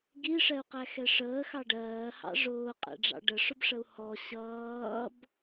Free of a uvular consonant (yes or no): no